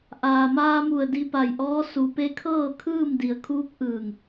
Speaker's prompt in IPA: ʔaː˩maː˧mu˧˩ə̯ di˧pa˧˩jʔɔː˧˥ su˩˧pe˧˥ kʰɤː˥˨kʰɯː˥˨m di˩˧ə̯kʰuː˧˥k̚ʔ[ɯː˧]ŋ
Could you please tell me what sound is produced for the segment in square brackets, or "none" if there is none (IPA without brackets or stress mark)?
ɯː˧˩